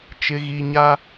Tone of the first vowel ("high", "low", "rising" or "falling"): low